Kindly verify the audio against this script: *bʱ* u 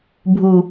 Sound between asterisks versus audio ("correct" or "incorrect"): correct